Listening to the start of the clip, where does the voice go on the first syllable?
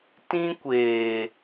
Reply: high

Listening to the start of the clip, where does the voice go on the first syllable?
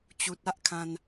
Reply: low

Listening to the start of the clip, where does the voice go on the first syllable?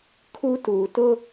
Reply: high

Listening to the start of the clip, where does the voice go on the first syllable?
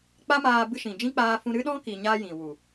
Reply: high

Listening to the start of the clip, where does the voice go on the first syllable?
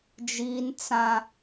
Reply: high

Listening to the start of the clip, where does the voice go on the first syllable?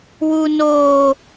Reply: high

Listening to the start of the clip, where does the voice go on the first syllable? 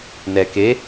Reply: low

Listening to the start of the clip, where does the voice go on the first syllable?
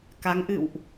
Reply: rising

